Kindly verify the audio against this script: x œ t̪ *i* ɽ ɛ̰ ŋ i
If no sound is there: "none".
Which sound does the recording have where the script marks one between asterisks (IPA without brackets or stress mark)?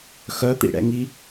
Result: ḭ